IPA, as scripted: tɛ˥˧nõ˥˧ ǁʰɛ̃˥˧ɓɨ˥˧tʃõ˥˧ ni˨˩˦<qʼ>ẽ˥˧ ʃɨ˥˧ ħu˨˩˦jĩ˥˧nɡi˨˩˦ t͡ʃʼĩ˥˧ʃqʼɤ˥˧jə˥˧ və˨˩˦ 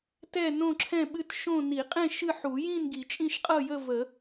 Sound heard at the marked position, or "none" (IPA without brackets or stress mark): qʼ